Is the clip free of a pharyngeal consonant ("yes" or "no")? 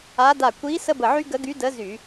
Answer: no